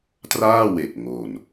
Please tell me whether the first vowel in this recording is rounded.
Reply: no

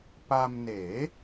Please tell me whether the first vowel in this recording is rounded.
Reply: no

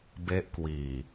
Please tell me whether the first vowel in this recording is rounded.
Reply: no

